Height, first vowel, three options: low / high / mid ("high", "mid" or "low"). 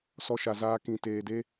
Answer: mid